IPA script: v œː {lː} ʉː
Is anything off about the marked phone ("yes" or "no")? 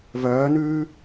yes